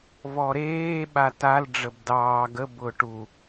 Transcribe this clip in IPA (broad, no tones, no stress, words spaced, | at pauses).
vɔɾeː ɓatal ɖ͡ʐəbdɑː ɡəb ʊːʈu